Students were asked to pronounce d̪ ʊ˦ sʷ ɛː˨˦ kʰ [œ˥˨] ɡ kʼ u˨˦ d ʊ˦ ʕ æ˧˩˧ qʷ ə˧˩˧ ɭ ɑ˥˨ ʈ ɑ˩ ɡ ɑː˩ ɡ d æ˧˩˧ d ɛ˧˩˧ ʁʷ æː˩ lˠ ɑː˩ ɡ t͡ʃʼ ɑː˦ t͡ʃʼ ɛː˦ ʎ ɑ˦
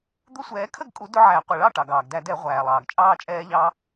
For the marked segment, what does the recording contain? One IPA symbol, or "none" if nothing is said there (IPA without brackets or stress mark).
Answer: ə˥˨